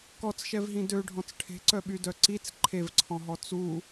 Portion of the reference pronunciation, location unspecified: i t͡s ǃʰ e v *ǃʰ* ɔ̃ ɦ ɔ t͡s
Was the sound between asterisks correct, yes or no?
no